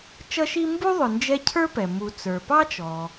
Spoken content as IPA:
t͡ʃ ʌ˥ ʃ i˥ m b u˥ ðˤ ʊ˨ n d͡ʒ ɛ˦ cʰ ə˞˥ p ɛ˩ m u˨ t͡s ə˞˩ p ɑ˥ t͡ʃ ɔ˩

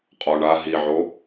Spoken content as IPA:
qʼ ɔ ɳ a ɦ i ʕ o

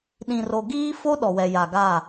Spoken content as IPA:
ɗ ĩ˨ r o˨ ɡ iː˦ f o˦ ɗ ɔ˨ w ɛ˨ j a˨ ɡ a˦˨

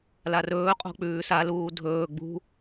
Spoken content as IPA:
l a r ɵː qʼ o̤ k͡p ʉː s a l uː dʱ ɵː ɡ͡b ṳ

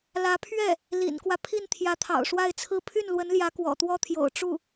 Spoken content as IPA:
l ä˧˥ pʰ ɥ ɛ˥˩ | l ḭ˨˩ n k w ä˦ pʰ i˥˩ n t̪ʰ j ä˧˥ t̪ʰ ɑ̰˨˩ ʊ̯ ʂ w a˥˧ ɪ̯ t͡sʰ ɹ̩˥˧ pʰ y˥˩ n l w ə˧˥ n l j ä˧˥ k w ɔ̰˨˩ t̪ w ɔ˥ t̪ʰ j o̰˨˩ ʊ̯ ʈ͡ʂ u˥˩

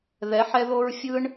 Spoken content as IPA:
ð ɛ˨˦ ħ ɛ˧ ð o˧ ɹ fʲ ɯ˦ ɳ

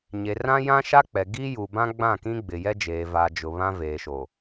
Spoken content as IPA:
ɲ e˨ r ã˦ j ã˦ ʃ a˦ k͡p ɛ˨ ɡ iː˦ j u˨ b ã˦ ɡ͡b ã˦˨ k ĩ˦ ɡ͡b ɪ˨ j ɛ˦ d͡ʒ eː˨ v a˨ d͡ʒ ʊ˨ β ã˦ v eː˨ ʃ o˨

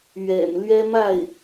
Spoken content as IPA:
ɥ ɛ̰˨˩ n l ɥ ɛ˥ m a˥˩ ɪ̯

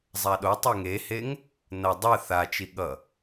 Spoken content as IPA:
zˤ a ɗ o tˤ e ŋ e h e ŋ | n ʌ dˤ ɯ θ a t͡ʃ i ɠ ʌ

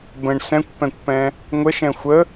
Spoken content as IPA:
b ə̃ ɳ s ɛ̃ kʷ p ɛ̃ kʷ p ɛ̃ | ŋʷ ə ʃ ɛ̃ xʷ ə

